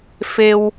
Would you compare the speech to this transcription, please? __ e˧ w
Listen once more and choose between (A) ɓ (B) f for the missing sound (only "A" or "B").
B